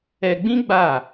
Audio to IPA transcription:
ɛ˧ ɡ͡b ĩ˦ ɡ͡b a˦˨

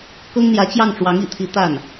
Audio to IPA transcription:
k ɤ˥ ŋ n̪ j ä˧˥ t͡ɕ j ɑ˥˩ ŋ ʈ͡ʂ w ɑ˧˥ ŋ ḭ˨˩ t̪ʰ i˧˥ t̪ a˥˩ n

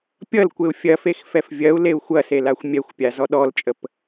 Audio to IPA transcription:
pʲ ʌ l kʷ e u̯ fʲ ɐ f e x f ɛ f vʲ ɐ u̯ l e u̯ xʷ ɐ s e l a xʷ mʲ ɛ xʷ pʲ a z ɔ ɗ ɔ l t͡ʃʼ ə p

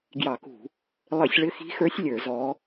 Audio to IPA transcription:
ɡ j ɑ˧˩˧ k ṳ˧˩˧ | lˠ ɘ˧˩˧ sʲ ɭ ɘ˧˥ x i̤˧˥ x ə˞˧˥ sʲ lʲ ə˞˧˩˧ z ɔ˧˥

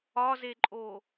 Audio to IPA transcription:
ɒ z e ǃʼ o

